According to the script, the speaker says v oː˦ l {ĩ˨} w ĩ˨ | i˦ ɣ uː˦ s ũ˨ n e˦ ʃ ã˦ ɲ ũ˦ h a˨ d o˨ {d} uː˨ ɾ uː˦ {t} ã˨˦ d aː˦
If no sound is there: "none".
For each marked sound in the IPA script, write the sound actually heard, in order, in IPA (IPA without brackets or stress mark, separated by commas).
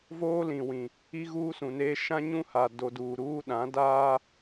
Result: ĩ˨, d, ɗ